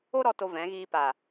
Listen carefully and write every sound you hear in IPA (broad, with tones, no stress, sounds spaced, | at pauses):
o˦ ɾ ɔ˧ t o˧ v ɛ̃˨˦ ɣ iː˧ p a˨